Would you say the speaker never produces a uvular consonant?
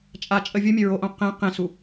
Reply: no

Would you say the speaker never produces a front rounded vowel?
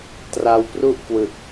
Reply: yes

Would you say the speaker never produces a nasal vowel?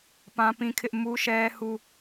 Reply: no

